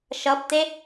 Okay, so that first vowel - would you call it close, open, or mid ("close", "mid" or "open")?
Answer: mid